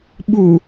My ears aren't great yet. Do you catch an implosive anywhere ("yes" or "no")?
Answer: yes